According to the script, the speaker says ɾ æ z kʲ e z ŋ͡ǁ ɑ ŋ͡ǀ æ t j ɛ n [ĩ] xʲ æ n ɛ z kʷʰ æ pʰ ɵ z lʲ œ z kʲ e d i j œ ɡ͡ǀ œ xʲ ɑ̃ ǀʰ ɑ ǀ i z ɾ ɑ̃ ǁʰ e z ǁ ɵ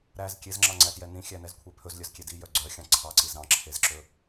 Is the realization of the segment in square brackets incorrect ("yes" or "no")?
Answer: no